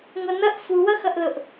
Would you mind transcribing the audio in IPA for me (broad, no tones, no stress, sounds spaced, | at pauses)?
ŋʷ ʌ n ʌ ʔ f u w ʌ x ʌ ʔ l ʊ ʔ